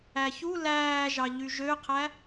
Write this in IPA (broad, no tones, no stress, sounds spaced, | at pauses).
æ ç u l æː ʒ ɑ ʎ y ʒ ø qʰ æ